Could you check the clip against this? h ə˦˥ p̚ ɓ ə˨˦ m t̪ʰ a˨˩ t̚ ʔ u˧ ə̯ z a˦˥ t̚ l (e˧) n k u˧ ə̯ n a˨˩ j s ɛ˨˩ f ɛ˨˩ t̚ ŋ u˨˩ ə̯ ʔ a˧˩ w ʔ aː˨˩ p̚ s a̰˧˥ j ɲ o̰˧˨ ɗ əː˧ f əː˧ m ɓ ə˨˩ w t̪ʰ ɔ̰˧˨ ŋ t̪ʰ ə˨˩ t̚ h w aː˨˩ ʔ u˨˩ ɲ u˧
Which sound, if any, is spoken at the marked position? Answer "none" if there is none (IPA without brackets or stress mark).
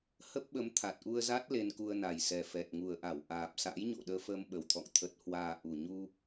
e˧